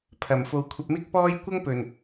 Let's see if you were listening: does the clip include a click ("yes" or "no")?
no